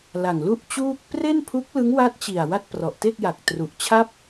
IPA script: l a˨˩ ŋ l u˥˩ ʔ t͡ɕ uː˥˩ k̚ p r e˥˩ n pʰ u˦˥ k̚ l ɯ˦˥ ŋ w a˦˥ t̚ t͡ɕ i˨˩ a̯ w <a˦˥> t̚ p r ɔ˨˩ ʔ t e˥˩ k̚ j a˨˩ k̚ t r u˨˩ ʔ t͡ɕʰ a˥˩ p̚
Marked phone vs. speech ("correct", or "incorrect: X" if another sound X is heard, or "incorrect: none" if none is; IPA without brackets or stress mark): incorrect: a˥˩